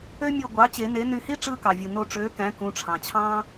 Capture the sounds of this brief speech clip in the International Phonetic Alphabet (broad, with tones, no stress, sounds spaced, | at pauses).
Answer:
ø˥ mʲ o˧˩ ɡʷ ɑ˩˥ t͡ɕ e˨˩˦ n e˩˥ n y˧˩ h i˥ ʈ͡ʂ ɯː˥ k ɑ˩ vʲ ɯ˩ n o˧˩ ʈ͡ʂ øː˩˥ k æ̃˩˥ k ũ˩˥ ʈ͡ʂʰ ɑ̃˩ t͡ɕʰ ɑ̃ː˥